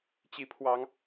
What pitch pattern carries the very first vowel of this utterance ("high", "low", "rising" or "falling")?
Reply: rising